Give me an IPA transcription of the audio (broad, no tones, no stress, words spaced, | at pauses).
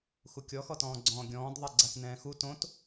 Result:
xukʲɔxɔtɔ̃ː ɡ͡ǀɔ̃ːɡʲɔ̃ːd ðˤɛɡ͡ǀatnɛ̃ːxu tõt